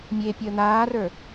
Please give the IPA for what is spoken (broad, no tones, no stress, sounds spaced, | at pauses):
mʲ e pʲ əː n̪ aː r ə˞